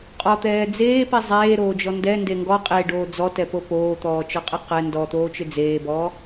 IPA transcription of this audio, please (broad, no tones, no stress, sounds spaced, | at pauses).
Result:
qʼ ɔ t̪ ɛː d͡z eː p i zˤ eː ɾ oː d͡ʒ ɔ n d ɛ n d e ŋ ɡ ɔ qʼ e ɖ oː d͡z ɔ t ɛ p o p oː t̪ ɔː t͡ʃ ɔ qʼ e q ɛ n d ɔ t̪ oː t͡ʃ ʏ d͡z eː b ɔː